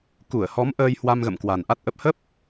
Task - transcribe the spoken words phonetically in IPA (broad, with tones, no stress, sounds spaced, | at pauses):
k u˧˩ ə̯ h ɔ˨˦ m ʔ əː˧ j h w a˧ m ɣ ə̰˧˨ m k w a˨˩ n ʔ a˦˥ t̚ ʔ ə˦˥ p̚ h ə˦˥ p̚